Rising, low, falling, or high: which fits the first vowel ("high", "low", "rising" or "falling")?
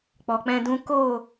low